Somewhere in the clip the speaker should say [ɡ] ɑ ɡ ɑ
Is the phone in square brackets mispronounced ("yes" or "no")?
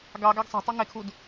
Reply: no